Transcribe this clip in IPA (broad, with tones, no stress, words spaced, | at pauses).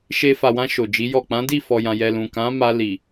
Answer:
ʃe˧ fa˨wã˧ ʃo˨d͡ʒi˨˦jɔ˦˨ k͡pã˨˦di˦˨ fɔ˨jã˨jɛ˨ lũ˨kã˨˦ma˧ li˨